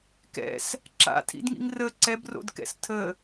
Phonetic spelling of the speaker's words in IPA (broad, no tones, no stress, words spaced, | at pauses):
kɛ̰s | ǁa̰tʰḭdŋḭŋ rə ǀɛbro̰dkɛ̰s tʰə